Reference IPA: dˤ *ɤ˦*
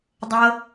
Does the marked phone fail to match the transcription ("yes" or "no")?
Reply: no